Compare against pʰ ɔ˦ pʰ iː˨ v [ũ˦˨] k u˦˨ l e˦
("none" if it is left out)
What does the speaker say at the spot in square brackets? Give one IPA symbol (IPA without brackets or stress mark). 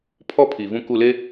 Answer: ũ˦˨